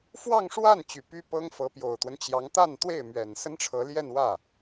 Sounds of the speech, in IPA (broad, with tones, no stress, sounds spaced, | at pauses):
f w ɑ˥˧ ŋ ʂ w a˥˩ n t͡ɕ y˨˩ p y˥ p ɤ˥ ŋ f ɤ˧˥ p j o˨˩ ʊ̯ t̪ w ə˦ n t͡ɕ j ɑ˧˥ ŋ t̪ a˥˧ n t̪ w e˥˩ ɪ̯ m ɥ ɛ˨˩ n s ə˥ n ʈ͡ʂʰ ɤ˧˥ l j ɛ˥˧ n w ä˥˩